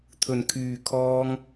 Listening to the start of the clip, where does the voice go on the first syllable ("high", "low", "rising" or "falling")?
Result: low